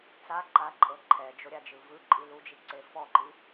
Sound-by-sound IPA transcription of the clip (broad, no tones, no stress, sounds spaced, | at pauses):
t͡s a ǃ a ǃʼ ɤ ǃʰ ɛ d͡ʒ o ɾʲ a d͡ʒ ɯ v ɯ ǃʼ i l u d͡ʒ i ǀ e f ɔ ǃ i